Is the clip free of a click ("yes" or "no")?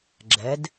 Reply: no